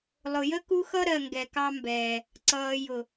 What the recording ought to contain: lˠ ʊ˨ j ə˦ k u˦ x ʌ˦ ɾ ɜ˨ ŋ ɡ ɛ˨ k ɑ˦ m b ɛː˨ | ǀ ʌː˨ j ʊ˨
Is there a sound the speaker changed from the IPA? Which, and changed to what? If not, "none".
none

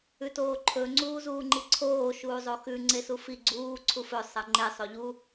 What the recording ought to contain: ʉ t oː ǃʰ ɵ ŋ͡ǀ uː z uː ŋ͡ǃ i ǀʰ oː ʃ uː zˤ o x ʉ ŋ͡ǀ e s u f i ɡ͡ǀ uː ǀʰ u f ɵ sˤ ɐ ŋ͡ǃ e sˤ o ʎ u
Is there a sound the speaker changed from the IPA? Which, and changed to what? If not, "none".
none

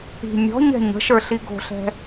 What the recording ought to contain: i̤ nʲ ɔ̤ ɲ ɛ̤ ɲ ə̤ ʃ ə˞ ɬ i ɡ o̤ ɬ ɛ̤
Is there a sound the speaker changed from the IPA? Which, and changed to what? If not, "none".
none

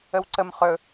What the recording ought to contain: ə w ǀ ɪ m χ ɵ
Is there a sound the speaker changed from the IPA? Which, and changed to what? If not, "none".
ɪ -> ə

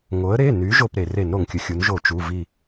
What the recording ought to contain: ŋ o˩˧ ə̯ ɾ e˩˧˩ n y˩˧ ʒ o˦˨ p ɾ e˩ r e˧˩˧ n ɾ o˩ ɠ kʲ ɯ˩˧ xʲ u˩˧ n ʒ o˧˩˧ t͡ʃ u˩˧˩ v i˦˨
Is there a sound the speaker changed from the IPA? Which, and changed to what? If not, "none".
ɠ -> ŋ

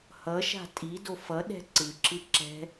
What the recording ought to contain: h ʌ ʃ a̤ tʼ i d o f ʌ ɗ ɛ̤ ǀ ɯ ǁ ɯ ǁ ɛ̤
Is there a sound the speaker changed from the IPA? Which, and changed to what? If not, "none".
none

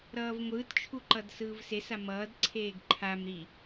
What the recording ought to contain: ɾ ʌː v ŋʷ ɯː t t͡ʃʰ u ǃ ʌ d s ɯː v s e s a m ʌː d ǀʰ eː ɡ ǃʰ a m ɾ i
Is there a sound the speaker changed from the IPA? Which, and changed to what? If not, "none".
none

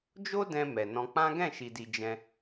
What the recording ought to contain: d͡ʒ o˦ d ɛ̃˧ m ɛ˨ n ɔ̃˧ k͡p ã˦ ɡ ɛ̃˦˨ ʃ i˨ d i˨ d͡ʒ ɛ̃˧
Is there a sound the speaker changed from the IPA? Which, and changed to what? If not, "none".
none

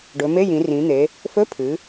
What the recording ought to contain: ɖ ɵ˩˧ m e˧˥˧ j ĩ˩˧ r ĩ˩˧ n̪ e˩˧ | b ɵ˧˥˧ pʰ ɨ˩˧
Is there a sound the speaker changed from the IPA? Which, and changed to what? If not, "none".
b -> f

